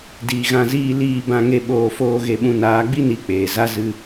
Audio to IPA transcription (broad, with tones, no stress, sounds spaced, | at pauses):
d iː˨ ɣ ã˧ z iː˦ l iː˦˨ b ã˦ ŋ e˦ ɓ oː˧ f oː˦ ɣ e˧ ɓ ũ˧ n aː˨˦ ɡ͡b i˦ n i˨˦ k͡p eː˨ z a˦ z ɨ˧